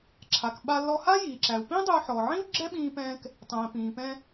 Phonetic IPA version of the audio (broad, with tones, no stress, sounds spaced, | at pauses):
ǁʰ a˩ k ɓ a˧ lː ɔ˧ h a˥ j iː˩ ǁ æ˩ u̯ p ĩ˥ dˤ ʏ˧ u̯ ħ ɔ˩ ʕ ĩ˥ u̯ ɡ͡ǁ ɛ˥ ɓ ĩː˧ p ɛ̃ː˧ k | tˤ ɛ̃ː˩ p ĩː˩ p ɛ̃˧